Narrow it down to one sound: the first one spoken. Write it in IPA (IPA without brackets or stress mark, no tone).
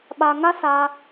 ɓ